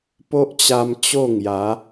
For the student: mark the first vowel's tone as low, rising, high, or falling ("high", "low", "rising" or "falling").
high